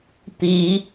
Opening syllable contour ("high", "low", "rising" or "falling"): rising